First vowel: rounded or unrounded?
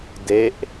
unrounded